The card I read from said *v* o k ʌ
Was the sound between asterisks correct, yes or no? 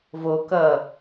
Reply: yes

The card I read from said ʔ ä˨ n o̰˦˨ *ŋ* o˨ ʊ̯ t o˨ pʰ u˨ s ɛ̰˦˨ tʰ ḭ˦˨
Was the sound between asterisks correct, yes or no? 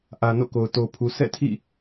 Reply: no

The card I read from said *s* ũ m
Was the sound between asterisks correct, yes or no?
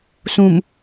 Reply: yes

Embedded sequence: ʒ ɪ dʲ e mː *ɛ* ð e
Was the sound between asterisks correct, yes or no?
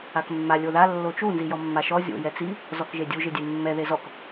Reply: yes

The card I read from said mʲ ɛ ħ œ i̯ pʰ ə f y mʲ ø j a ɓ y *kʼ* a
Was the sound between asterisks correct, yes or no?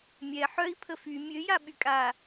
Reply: yes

